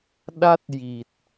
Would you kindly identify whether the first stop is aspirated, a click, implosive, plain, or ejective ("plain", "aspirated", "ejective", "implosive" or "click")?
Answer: implosive